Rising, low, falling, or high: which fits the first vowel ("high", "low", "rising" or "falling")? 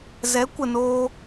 rising